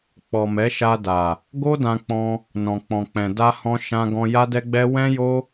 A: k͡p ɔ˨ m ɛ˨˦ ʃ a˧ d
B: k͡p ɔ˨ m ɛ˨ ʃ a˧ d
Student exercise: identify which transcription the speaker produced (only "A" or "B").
A